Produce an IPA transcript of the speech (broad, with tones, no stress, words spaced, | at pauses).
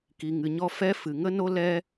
ki˨ŋɨ˨ɲɔ˧ fɛ˦ fɨ˨ ŋə˦no˦ lɛ˧